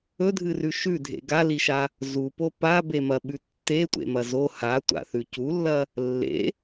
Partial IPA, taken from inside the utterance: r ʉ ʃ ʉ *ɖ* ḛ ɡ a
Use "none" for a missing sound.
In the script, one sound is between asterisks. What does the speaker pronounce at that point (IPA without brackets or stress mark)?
dʱ